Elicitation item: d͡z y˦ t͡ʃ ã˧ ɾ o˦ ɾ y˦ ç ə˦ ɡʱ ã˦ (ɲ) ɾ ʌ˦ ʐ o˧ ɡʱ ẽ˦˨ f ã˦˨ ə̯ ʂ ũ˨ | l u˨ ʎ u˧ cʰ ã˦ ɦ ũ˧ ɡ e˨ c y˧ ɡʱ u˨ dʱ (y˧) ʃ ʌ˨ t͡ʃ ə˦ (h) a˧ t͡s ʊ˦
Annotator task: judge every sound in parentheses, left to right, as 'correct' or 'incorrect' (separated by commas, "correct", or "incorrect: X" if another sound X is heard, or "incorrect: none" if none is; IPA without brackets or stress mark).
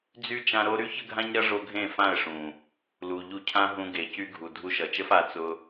correct, incorrect: u˧, incorrect: f